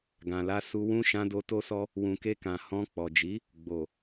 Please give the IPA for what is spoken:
ɡ ã˨ l a˧ s u˧ w ũ˦ ʃ ã˧ d o˧ t o˦ s ɔ˦ | w ũ˨ k e˧ k ã˨ h ɔ̃˧ k͡p ɔ˨ d͡ʒ i˨˦ | ɡ͡b o˨

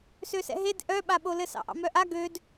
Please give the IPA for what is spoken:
s ø s ɛ̰ ɦ e d ʔ œ ɓ a ɓ o l ɘ s ɑ̰ ʔ ɑ̰ m œ ʔ a ɡ ø d

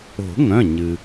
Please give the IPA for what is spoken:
o̤˨˩˦ ŋ œ̃˩˧˩ ɲ ɨ˩

